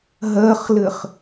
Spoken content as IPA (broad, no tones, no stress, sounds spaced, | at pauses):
ɦ ɜ χ l ɘ χ